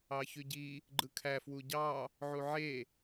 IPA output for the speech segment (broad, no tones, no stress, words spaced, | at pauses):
ɑçyɟi | ɡ͡ǃɯkʰæ fwuɟɑ | ʕuʕe